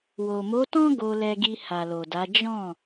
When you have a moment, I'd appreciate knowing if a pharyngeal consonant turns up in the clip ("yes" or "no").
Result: no